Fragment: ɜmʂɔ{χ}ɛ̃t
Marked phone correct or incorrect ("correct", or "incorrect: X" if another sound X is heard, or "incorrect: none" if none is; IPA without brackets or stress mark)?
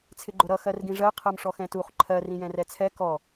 incorrect: x